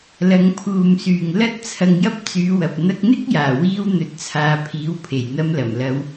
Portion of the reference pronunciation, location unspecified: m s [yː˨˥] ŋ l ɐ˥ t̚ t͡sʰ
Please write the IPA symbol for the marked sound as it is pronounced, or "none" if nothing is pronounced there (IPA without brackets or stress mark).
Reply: yː˨